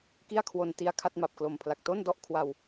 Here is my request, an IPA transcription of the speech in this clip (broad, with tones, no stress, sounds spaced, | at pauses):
k i˥˩ a̯ kʰ w o˧ n t i˧ a̯ kʰ a˥˩ t̚ m a˨˩ p̚ k l o˨˩ m pʰ l a˨˩ k̚ t o˥˩ n d ɔ˥˩ ʔ kʰ w a˧ w